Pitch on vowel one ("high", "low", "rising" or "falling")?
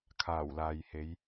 low